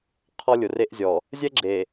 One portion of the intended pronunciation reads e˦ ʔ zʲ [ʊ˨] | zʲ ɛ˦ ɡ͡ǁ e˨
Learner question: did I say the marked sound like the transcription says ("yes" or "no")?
no